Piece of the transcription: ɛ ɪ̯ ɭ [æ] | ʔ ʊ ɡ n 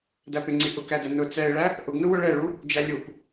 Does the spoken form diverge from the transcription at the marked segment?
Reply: no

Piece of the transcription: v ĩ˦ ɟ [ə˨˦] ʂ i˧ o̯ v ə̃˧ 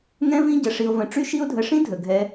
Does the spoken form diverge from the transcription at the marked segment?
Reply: no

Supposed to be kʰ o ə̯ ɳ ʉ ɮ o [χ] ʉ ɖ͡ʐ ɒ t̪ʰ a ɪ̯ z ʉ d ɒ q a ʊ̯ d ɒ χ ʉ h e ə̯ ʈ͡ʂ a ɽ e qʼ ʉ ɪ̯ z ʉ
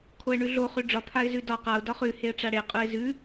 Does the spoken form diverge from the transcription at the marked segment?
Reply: no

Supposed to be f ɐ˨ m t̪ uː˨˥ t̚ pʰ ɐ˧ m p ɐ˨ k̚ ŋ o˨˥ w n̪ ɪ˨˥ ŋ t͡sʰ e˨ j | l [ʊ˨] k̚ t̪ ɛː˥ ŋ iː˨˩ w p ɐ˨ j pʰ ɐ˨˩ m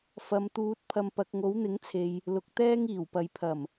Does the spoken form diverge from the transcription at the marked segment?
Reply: no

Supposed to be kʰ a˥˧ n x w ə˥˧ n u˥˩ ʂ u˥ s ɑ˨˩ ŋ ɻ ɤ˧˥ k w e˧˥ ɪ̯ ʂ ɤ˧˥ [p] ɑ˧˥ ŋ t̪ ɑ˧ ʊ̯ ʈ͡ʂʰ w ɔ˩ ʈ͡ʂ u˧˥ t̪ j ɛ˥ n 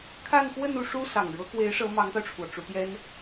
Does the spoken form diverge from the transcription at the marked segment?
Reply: yes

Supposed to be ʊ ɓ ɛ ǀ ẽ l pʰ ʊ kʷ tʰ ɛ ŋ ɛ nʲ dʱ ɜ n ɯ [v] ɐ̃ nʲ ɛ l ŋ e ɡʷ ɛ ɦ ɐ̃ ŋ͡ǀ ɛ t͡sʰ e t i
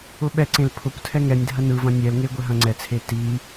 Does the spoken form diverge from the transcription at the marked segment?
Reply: no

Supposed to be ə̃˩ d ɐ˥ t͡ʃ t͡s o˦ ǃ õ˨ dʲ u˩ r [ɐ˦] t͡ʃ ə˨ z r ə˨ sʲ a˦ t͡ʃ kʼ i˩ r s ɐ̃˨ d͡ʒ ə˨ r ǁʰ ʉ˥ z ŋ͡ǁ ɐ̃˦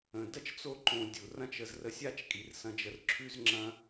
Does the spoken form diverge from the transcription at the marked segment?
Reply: yes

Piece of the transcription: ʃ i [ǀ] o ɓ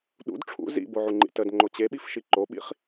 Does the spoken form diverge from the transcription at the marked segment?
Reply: yes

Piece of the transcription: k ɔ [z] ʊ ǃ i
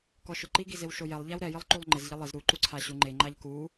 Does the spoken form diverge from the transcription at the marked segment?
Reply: yes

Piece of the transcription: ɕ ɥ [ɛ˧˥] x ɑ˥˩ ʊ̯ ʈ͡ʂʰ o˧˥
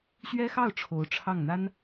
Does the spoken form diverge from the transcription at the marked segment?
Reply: yes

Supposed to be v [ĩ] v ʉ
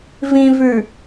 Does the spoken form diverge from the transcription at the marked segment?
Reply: no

